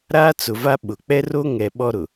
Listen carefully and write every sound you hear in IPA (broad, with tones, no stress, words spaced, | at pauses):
ɾaː˦t͡sʊ˨va˦ ɓʊ˨ k͡pɛ˦ro˦ ŋɛ˨ ɓɔ˦ɾʊ˨